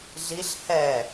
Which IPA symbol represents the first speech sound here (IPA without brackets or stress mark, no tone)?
ɮ